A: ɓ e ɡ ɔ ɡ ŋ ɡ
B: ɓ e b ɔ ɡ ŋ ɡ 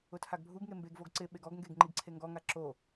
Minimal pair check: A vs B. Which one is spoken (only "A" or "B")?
A